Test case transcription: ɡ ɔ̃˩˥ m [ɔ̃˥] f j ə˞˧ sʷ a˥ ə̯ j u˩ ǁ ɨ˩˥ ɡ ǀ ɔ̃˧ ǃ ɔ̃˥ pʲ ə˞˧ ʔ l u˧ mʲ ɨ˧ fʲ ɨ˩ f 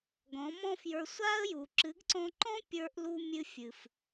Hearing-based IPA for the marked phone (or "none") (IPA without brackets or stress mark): ɔ̃˥